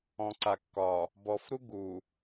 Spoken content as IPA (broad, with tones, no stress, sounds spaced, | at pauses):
ɔ̃˨ ǀ a˨ kː ɒ˨ | b ɔ˨ f ɾ u˦ ɡ u˨